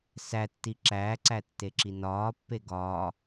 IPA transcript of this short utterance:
s æ tː i ǁ æː ǀ æ tː e ǁ i n ɒː pː e ɡ ɒː

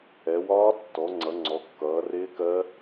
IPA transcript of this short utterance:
ɛ˩˧ w ɒː˦˥ tː ɔ˩˧ ŋ͡ǀ ʌ˩˧ ŋ͡ǀ ɔ˩˧ kː ʌː˩˧ r ɪː˦˥ k ɜ˦˥

